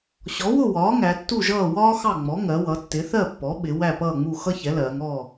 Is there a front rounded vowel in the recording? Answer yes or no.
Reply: no